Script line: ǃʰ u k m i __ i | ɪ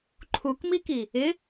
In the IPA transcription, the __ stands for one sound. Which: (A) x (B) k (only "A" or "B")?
B